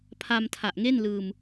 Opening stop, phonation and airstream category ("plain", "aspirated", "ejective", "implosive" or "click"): aspirated